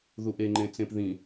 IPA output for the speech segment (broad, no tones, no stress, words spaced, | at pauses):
ðuʔeŋ͡ǃẽ t͡sẽpðĩ